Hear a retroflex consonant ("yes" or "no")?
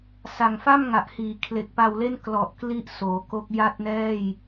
no